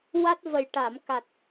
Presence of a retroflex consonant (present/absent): present